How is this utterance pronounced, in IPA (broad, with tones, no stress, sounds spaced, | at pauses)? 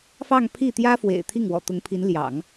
f ɑ˥˧ ŋ pʰ i˥˩ t̪ j ä˥ f w ḛ˨˩ ɪ̯ t̪ʰ i˥˩ ŋ w ɔ̰˨˩ t̪ ʊ˧˥ ŋ pʰ i˧˥ n l j ɑ̰˨˩˦ ŋ